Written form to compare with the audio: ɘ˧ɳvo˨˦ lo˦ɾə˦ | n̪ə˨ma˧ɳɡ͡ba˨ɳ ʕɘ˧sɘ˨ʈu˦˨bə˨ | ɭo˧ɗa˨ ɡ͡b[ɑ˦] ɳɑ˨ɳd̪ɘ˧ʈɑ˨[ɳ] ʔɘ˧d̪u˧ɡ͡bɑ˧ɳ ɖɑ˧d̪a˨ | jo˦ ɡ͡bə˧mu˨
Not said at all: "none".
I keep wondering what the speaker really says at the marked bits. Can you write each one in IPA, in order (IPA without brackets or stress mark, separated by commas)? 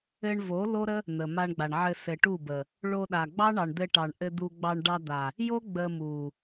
ɑ˦, ɳ